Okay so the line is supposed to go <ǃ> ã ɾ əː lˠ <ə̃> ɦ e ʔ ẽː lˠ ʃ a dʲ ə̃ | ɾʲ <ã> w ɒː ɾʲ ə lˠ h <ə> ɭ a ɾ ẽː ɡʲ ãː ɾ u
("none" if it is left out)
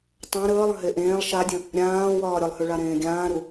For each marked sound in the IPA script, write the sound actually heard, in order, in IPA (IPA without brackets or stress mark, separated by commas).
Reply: tˤ, ə̃, ãː, ʉ